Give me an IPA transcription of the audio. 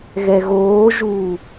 ɣɛɣoːʒuː

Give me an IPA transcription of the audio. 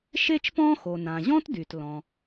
ʃe˥t͡ʃpɔ̃˥xo˩nã˩ ʑɔ̃˥tdy˩t lɔ̃˩

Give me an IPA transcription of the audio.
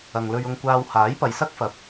ɐ˨ŋlɵ˧ɥʊ˧ŋkʷaː˧w haː˨˥jpɐ˨jsɐ˥k̚fɐ˨˥p̚

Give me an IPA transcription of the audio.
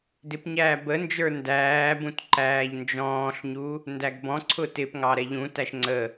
dɪpɲæː bənd͡ʒə˞ ndæːbũt ǃæːʎnd͡ʒɔ̃ːɬɲu | ndæɡbɔ̃ǀʰʊ tɪpŋɑ ɾɛʎũtæʃ ŋ͡ǀə

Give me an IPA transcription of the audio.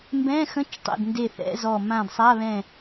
mbɛ̃˧˥˧xə̃˧˥˧t͡ʃtˤḛ˧˩d nde˧˩θɛ̰˧˥˧ zɔ˧˩ mã˧˩dsˤa˧˥˧βɛ̃˧˩

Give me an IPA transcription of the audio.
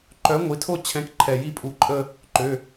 ǃœ˨˥ ŋʷi˩˧˩tʰo˥˧t͡ɕʰɛ̃˨˥k ǃʰɛ˨˩˦ji˦˥pʼu˧˩ǃʼə˥˧ | ǃø˩˧˩

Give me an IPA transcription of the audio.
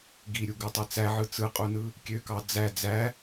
ɡiɾʲuɡɯtˤe t͡sæʕɯ t͡sɯqʼunɯ | kʲøkɑ d͡zæ d͡zæ

